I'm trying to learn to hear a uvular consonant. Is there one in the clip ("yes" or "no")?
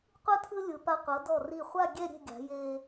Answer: yes